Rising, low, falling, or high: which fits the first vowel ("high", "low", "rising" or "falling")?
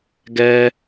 high